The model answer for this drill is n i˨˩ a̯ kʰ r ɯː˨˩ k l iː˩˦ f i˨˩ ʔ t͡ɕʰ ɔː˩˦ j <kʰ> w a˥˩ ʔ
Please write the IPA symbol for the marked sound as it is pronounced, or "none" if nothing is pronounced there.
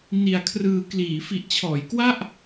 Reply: k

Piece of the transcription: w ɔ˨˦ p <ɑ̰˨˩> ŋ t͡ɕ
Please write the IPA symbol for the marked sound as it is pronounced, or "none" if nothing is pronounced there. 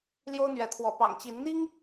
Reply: ɑ̰˨˩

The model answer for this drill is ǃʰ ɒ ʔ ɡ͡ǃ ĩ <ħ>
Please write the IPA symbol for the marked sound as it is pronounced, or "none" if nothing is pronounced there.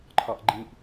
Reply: ʔ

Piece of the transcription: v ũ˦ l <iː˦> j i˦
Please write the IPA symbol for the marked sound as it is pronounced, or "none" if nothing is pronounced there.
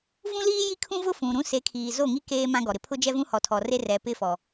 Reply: iː˦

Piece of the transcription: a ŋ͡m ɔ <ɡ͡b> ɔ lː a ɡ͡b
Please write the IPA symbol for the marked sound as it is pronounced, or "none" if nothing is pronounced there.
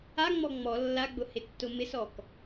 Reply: ŋ͡m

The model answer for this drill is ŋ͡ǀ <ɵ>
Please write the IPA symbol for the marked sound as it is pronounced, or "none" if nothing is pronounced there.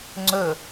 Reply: ɵ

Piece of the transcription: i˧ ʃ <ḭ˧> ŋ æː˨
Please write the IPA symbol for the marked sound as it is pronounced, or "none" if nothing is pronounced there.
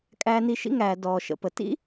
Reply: ḭ˦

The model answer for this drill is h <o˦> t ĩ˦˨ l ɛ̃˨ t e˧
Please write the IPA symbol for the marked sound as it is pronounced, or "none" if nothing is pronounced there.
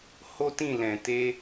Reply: o˦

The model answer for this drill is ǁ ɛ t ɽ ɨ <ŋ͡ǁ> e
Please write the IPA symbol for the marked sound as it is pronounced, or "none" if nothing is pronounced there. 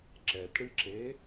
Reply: ǁ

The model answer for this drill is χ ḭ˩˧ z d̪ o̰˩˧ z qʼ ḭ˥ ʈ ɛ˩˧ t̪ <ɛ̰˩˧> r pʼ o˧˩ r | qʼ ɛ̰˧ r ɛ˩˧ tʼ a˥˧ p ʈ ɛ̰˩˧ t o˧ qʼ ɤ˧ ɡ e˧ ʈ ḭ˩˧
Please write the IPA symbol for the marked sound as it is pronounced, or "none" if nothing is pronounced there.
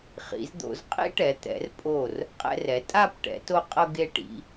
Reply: ɛ̰˩˧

